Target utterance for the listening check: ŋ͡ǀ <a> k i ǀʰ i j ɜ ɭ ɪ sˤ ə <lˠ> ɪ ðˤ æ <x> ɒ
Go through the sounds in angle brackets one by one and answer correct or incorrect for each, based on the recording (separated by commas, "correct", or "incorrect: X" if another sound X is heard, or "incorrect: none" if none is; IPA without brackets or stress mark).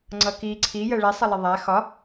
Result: incorrect: ʌ, correct, correct